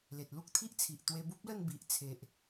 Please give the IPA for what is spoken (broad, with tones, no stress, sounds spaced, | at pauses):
l e˨ t̚ l u˦ k̚ t̪ʰ i˦ ʔ t͡sʰ i˨ ʔ t̪ w e˧ b u˦ p̚ l ə˥˧ n b i˨ ʔ t͡sʰ e˨ ʔ